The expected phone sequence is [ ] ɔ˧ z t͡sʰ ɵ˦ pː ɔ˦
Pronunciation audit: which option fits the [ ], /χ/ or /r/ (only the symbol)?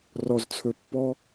r